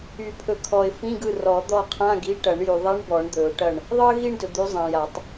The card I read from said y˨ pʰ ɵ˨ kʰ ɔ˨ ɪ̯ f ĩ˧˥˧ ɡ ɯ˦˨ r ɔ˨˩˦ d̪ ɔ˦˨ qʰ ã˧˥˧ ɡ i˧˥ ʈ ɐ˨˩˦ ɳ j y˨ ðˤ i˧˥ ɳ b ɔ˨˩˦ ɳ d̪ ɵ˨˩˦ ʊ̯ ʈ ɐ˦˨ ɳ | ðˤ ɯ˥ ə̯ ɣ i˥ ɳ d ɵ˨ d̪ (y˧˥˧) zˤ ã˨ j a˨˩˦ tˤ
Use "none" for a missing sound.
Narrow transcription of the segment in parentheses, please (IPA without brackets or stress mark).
y˧˥